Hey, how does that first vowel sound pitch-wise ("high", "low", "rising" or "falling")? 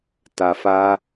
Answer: low